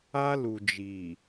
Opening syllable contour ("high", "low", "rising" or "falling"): high